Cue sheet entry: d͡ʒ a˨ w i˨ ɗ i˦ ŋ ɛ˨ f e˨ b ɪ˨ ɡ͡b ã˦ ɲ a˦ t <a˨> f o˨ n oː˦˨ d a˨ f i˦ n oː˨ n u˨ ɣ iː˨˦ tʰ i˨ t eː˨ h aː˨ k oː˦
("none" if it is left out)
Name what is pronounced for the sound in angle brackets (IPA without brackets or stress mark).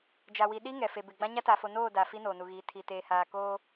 a˨